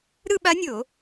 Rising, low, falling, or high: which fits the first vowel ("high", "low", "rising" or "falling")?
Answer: falling